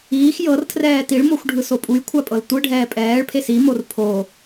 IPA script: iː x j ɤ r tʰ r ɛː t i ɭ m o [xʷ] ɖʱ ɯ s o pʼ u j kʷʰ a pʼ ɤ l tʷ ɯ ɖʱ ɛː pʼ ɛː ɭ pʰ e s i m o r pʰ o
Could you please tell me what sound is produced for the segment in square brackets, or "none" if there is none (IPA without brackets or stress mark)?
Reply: xʷ